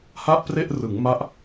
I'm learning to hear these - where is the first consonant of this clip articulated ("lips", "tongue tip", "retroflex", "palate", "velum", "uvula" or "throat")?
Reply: throat